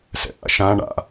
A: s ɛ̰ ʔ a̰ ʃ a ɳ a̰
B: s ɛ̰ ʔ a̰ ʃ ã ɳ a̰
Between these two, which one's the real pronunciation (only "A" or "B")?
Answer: B